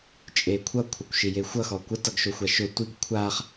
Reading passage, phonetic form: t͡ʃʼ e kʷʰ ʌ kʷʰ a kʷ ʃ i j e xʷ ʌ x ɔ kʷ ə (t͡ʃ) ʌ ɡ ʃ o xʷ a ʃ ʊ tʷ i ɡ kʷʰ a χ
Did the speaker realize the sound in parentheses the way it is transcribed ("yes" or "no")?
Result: no